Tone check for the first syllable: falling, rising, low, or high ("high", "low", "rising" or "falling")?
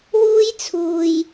high